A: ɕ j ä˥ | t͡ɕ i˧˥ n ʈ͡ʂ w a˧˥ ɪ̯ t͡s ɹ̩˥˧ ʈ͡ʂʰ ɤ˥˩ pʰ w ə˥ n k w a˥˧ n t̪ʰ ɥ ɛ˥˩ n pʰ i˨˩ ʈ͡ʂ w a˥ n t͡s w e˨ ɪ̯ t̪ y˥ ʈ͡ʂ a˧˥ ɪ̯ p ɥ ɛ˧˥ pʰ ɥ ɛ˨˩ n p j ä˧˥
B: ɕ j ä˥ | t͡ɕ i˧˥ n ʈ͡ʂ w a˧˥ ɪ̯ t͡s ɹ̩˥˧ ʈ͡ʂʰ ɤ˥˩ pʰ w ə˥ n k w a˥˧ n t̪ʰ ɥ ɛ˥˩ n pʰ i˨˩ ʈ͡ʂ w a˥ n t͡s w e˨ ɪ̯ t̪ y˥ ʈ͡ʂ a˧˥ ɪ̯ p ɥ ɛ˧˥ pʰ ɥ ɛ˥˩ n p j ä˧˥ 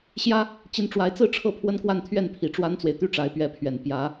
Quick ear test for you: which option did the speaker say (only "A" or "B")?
A